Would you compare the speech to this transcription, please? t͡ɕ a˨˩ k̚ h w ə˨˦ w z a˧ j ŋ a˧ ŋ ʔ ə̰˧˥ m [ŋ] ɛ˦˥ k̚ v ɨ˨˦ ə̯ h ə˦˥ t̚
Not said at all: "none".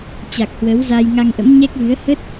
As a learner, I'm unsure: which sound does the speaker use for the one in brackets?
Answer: ɲ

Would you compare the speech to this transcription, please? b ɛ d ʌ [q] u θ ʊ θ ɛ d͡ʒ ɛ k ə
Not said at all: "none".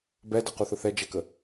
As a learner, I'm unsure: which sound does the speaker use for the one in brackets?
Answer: q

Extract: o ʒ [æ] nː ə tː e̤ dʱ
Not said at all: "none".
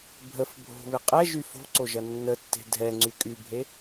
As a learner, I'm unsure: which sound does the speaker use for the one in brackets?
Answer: ɐ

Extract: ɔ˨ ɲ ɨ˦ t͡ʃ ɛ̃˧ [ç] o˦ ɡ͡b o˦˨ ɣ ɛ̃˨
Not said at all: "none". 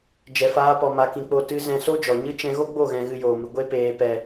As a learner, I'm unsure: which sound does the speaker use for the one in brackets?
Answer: ɣ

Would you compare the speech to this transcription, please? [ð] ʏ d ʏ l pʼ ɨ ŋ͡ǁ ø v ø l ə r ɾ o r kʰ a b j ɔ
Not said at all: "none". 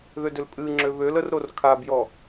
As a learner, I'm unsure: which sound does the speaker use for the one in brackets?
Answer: ð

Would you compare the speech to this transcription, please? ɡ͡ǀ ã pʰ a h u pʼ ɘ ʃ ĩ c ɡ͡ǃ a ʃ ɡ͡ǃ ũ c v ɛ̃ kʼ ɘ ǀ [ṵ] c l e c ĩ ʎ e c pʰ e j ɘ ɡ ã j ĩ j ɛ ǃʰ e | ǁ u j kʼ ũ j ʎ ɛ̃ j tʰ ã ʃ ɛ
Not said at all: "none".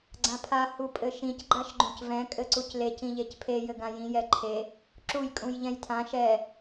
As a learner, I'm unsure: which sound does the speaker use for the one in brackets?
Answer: u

